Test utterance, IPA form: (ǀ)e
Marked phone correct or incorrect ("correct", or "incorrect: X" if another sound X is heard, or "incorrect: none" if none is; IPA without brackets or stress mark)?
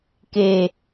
incorrect: k